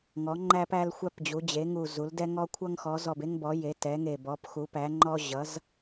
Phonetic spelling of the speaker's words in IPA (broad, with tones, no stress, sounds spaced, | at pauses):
ŋ ɔ˩˧ ŋ͡ǃ æ˧ p æ˧ l xʷ æ˧ p d͡ʑ u˩˧ d͡ʑ e˩˧ ŋ u˨˩ z u˩˧ l d ɛ˧ ŋ ɔ˧ kʷʰ ʌ˧ ŋ x ɔ˩˧ z ɔ˨˩ b e˧ ŋ b ɔ˩˧ j e˩˧ t ɛ˩˧ ŋ e˨˩ b ɔ˩˧ p x u˩˧ p æ˩˧ ŋ͡ǃ ɔ˧ ʑ ʌ˩˧ z